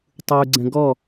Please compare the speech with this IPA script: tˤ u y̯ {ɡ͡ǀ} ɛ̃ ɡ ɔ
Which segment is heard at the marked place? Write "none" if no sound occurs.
ɡ͡ǀ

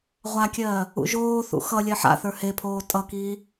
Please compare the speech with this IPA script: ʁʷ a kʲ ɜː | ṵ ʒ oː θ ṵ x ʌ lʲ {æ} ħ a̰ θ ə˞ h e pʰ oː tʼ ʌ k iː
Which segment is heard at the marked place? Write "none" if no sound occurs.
ɜ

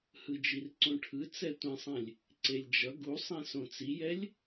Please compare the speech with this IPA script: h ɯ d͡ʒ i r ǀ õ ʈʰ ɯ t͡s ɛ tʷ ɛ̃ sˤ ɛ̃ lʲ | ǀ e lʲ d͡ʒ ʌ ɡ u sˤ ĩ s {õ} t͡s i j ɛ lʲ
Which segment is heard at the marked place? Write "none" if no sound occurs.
õ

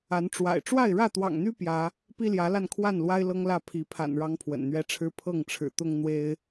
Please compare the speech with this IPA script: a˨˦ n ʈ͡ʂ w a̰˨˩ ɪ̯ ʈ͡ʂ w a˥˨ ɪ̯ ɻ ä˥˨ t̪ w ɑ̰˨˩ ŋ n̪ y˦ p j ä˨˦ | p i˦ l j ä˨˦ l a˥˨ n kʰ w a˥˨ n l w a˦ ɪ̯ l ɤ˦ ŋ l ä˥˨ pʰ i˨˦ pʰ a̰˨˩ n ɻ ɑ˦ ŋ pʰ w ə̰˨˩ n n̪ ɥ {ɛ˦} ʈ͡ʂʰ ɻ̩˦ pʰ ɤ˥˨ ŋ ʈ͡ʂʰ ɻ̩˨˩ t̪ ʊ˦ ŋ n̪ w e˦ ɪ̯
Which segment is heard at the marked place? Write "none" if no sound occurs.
ɛ˦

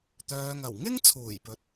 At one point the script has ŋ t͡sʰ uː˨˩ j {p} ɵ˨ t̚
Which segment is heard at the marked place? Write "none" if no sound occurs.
p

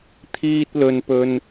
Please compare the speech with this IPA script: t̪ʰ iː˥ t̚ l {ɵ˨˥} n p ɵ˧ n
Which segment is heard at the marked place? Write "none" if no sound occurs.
ɵ˧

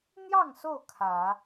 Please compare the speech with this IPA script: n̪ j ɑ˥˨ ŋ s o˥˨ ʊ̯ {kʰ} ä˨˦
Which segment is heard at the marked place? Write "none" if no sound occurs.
kʰ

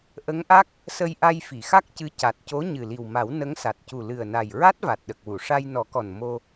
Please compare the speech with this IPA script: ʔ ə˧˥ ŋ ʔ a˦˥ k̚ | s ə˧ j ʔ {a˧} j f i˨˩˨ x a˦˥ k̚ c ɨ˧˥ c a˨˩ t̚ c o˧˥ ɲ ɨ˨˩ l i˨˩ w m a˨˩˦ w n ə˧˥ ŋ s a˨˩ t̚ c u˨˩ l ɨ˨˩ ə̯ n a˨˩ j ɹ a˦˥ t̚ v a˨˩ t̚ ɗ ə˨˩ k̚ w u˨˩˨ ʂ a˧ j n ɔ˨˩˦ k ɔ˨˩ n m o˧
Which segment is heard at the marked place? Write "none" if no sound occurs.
a˧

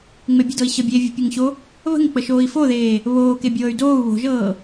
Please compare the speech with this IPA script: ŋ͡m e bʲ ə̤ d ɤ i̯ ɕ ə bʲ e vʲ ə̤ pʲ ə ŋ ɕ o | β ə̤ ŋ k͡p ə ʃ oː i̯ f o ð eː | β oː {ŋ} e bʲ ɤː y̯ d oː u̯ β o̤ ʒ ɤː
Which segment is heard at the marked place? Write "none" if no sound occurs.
k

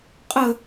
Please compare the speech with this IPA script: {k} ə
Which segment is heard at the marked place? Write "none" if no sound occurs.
qʼ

